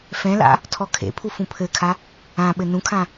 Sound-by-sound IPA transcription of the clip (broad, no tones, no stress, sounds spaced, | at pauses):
f ɛ̃ l a̰ | tʰ ɔ kʰ ḛ pʰ u f ũ pʰ ɘ kʰ a | ã ɓ ɘ n ũ kʰ ã